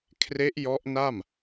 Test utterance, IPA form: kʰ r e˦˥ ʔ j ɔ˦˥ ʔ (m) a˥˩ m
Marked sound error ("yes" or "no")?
yes